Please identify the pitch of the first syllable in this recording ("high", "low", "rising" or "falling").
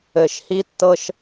low